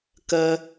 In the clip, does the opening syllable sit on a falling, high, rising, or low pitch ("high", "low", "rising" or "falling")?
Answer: low